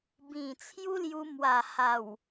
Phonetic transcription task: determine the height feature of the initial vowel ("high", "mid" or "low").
high